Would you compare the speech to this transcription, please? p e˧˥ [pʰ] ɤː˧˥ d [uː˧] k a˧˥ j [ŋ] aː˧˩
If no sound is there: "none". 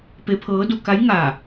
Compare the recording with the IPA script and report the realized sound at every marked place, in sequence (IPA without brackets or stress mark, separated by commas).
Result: pʰ, u˧, ŋ